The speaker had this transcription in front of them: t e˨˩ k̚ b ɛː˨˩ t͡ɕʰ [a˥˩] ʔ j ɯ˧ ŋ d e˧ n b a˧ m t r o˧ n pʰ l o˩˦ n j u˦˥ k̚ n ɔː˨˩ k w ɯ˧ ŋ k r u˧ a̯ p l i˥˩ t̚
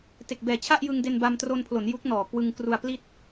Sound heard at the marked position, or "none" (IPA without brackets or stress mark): a˥˩